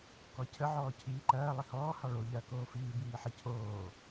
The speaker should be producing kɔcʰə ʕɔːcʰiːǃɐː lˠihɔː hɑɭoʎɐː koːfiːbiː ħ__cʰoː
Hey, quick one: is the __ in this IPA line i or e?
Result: i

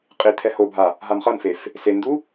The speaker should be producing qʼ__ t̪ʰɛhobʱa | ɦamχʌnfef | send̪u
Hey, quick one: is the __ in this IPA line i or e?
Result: i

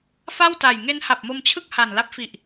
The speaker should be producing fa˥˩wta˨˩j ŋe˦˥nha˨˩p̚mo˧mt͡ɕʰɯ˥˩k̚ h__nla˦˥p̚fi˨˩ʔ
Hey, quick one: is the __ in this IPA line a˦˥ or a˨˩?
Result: a˨˩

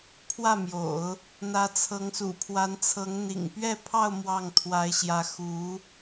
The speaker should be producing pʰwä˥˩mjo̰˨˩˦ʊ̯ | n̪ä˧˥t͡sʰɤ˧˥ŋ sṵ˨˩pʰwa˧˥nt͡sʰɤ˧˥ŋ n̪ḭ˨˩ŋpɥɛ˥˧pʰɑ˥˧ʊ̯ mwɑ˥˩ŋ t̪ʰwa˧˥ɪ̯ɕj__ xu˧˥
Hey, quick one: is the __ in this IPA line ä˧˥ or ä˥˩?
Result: ä˧˥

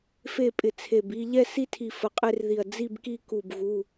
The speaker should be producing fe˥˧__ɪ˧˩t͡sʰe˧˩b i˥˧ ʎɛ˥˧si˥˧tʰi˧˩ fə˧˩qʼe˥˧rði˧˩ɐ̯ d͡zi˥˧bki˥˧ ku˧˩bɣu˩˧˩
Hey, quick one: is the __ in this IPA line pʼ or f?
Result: pʼ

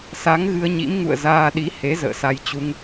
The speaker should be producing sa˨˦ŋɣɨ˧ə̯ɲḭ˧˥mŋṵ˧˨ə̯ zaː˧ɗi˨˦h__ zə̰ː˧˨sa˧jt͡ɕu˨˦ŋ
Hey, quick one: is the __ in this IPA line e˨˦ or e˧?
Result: e˨˦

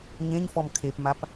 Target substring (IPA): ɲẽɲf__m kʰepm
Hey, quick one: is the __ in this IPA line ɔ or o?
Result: ɔ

